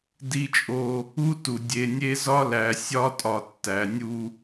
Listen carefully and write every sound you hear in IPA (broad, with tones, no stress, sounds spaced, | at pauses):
d i˦ t͡ʃʼ o˦ | u˦ t u˨ dʲ e˨ nʲ e˦ z ɒ˦ l æ˨ sʲ ɒ˦ tʼ ɒ˨ tː æ˨ nʲ u˦